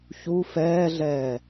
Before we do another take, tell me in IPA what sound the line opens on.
ç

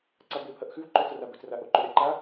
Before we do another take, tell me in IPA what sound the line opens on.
ǀ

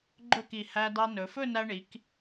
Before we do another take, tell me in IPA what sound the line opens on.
ɡ͡ǃ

